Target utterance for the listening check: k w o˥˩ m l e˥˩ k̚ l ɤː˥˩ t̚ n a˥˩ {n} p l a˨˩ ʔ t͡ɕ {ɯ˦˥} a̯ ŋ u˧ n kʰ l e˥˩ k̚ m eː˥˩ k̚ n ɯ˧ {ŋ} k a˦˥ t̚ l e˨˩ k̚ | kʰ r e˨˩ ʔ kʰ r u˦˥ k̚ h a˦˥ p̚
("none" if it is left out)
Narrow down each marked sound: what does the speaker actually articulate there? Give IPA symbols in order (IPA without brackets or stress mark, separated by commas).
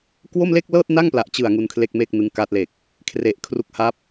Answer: ŋ, ɯ˨˩, ŋ